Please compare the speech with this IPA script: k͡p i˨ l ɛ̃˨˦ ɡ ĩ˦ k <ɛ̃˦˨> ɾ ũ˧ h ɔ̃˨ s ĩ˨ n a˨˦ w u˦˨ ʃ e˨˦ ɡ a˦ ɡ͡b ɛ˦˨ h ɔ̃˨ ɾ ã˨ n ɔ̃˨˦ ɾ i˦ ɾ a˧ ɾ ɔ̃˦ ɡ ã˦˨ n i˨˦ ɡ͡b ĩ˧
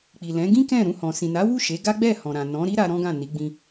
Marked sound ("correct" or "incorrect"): correct